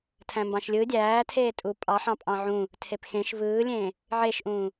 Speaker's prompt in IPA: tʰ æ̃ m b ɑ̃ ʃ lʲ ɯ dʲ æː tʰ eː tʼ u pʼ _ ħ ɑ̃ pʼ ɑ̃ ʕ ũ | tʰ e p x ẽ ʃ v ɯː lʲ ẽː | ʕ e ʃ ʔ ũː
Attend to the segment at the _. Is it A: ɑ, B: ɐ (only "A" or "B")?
A